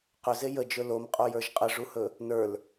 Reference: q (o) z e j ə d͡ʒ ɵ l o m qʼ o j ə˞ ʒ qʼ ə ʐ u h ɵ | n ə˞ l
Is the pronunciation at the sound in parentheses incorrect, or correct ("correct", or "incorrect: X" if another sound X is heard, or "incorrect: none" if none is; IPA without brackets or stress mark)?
incorrect: ɵ